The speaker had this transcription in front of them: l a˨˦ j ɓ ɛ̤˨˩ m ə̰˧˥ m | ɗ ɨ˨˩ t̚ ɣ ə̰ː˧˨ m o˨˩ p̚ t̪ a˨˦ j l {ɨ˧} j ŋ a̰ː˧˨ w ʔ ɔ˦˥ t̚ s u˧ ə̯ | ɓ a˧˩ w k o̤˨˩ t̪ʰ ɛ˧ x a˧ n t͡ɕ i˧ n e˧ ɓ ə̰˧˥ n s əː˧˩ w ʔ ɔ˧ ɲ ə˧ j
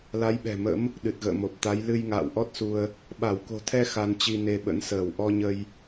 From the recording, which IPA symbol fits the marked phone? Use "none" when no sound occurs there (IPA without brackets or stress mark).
ɨ˧